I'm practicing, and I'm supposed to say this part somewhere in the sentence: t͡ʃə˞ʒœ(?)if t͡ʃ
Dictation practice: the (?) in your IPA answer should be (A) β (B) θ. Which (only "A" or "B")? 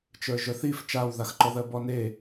B